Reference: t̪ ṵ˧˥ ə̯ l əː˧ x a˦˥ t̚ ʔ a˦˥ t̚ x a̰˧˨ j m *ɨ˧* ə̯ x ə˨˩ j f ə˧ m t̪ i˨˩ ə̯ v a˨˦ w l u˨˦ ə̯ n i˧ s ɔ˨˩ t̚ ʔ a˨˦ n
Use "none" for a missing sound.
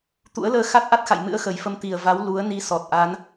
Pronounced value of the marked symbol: ɨ̰˧˥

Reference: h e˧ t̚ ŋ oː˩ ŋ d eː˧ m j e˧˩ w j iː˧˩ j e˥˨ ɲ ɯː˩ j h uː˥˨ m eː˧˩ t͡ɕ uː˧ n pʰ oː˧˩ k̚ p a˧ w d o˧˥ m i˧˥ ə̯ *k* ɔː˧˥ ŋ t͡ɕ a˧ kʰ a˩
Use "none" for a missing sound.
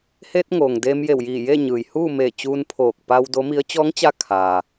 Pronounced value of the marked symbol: t͡ɕ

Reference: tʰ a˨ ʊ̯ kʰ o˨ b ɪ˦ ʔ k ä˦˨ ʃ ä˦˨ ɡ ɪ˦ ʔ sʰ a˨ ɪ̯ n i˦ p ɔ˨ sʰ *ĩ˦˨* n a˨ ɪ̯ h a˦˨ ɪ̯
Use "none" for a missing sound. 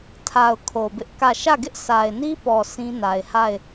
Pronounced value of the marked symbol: ĩ˦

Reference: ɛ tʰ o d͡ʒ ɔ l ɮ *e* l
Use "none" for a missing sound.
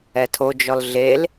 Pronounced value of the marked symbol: e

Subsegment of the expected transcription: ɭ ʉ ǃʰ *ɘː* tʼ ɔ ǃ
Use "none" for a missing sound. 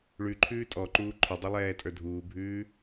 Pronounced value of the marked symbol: ʉː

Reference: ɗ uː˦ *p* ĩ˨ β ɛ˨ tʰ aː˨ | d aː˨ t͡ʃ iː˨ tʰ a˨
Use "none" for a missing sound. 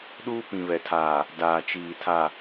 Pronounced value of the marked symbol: p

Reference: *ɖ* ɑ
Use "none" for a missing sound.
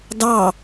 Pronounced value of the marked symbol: d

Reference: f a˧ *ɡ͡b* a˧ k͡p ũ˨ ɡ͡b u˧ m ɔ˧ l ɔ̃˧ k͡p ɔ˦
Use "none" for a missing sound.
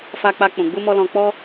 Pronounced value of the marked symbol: k͡p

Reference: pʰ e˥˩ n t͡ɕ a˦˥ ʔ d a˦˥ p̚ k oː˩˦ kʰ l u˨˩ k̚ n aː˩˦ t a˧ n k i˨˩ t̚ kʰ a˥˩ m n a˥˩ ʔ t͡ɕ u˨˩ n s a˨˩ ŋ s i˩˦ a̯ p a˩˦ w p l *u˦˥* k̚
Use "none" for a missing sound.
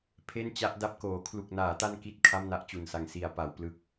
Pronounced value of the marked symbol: ɯ˦˥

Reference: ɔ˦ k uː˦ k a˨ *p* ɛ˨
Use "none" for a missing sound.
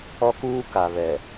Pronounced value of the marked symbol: β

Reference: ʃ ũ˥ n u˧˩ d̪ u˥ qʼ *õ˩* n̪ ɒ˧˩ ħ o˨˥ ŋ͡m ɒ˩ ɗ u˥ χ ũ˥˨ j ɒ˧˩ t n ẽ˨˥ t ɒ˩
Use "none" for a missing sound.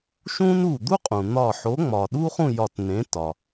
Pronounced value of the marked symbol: ũ˩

